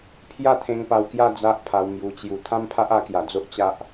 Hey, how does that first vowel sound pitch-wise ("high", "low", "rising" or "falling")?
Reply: falling